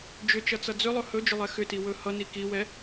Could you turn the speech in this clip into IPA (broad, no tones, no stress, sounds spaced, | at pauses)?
d͡ʒ ʏ t͡ʃ ʌ t͡s ʌ d͡z ʏ lˠ ɵ h ɵ d͡ʒ ʏ lˠ ɛ x ʏ t i w ɵ h ʌ n i k i w ɛ